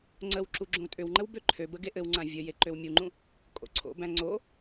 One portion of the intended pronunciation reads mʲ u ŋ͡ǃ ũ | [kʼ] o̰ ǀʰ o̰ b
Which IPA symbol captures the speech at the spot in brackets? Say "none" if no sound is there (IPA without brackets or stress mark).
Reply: kʼ